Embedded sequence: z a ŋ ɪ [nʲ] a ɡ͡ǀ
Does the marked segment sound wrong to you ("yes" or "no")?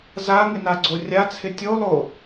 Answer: yes